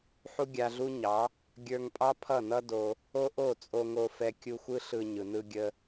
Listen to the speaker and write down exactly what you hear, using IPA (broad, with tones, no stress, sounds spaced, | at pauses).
ħ u˦ ɡʲ a˧ ɮ u˦ ɲ ɑ˨˦ | ɡʲ ə˞˧ ŋ pʼ ɑ˦ pʰ ʌ˦˨ n ʌ˦ d o˧ | o˦ ʔ o˦˨ t͡sʼ o˧ ŋ o˧ f ɛ˧ kʲ u˧ xʷ ɯ˦ ɬ ɯ˧ ɲ ɯ˨ n ɯ˧ ɡʲ ə˧